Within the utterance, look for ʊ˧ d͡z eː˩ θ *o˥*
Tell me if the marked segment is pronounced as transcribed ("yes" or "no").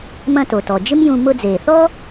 no